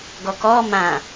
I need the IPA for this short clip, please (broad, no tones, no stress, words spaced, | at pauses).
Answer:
ɡɔkɔ mã